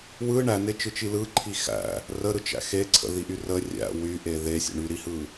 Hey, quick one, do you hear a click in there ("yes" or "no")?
yes